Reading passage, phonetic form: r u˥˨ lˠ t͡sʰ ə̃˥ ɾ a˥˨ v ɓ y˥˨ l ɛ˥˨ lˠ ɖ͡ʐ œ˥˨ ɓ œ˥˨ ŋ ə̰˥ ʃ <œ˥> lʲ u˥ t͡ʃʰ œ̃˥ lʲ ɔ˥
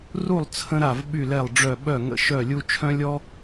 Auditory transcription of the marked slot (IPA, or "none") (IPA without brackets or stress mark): œ˥˨